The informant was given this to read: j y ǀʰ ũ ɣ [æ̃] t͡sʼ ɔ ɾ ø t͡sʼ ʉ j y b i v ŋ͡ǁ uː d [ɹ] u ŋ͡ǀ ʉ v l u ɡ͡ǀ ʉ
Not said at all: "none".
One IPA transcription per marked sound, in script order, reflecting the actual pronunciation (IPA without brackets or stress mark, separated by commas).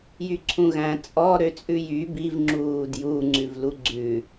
æ̃, j